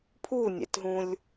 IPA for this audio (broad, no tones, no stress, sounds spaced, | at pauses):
pʰ u nʲ ɛ̰ t ɦ ũ lʲ